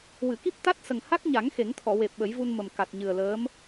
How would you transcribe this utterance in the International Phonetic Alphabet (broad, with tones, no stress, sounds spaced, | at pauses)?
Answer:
w ɨ˨˩˨ k i˦˥ p̚ t̪ a˦˥ t̚ s ə˨˩ ŋ h a˦˥ k̚ ɲ a˨˩˦ ŋ x e˨˩˦ ŋ t̪ʰ ɔ˨˩˨ w e˨˩ p̚ ɓ ə˨˩˦ j v u˧ n m ə˨˩ m k a˨˩ t̚ ɲ ɨ˨˩ ə̯ l əː˧˥ m